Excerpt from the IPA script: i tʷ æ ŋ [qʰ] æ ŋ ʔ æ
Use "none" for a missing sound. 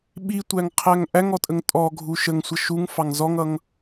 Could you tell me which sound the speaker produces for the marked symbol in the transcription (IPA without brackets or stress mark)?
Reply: qʰ